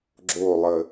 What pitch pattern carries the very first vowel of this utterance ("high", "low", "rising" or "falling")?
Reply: falling